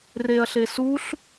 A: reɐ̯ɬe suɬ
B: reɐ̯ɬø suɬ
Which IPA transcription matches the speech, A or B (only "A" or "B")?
A